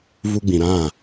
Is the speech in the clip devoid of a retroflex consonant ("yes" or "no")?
yes